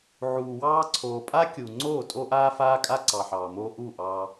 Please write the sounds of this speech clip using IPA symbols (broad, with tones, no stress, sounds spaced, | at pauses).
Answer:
ʕ uː˨ w ɑː˦ ǀʰ oː˨ pʼ aː˦ kʲ uː˨ ŋ͡ǀ oː˦˨ tʼ o˦ ʔ aː˦ f aː˦ kʼ a˦ ǀ ɑ˨ ħ ɑː˨ m oː˦ ʔ u˦˨ ʔ ɑ˦